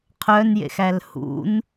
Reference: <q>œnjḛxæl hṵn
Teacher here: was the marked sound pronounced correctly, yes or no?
no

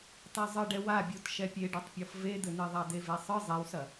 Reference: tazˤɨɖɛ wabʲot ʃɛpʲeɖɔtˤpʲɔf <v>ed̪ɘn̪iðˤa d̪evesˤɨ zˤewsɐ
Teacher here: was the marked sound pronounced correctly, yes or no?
yes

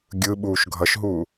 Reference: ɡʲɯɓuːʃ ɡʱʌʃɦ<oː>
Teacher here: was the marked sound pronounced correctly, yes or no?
no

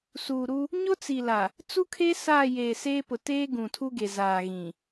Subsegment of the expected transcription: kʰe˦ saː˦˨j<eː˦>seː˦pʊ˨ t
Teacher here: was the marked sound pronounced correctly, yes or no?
no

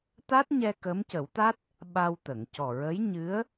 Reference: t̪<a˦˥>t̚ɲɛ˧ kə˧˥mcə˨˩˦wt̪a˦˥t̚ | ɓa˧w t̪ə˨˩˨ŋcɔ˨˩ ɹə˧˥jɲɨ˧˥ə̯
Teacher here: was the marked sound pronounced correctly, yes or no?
yes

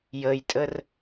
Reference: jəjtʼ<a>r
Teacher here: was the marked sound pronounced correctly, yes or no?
no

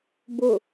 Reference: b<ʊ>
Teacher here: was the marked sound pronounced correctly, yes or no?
yes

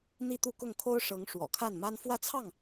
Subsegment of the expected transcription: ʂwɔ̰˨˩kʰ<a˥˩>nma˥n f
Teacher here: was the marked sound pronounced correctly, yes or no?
yes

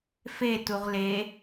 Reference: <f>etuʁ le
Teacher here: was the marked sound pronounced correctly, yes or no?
yes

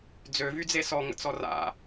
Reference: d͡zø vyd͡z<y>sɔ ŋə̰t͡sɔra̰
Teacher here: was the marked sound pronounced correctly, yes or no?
no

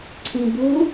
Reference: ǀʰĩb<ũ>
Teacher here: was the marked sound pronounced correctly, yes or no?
no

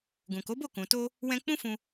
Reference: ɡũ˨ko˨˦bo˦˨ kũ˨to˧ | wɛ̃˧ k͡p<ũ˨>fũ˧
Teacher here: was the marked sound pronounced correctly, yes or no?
no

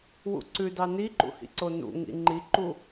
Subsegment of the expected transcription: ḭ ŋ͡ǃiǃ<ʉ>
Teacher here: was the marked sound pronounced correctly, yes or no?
no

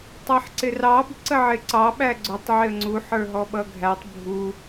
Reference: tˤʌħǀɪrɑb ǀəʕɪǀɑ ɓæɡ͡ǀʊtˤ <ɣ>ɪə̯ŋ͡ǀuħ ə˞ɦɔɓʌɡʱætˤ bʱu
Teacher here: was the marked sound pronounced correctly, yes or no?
no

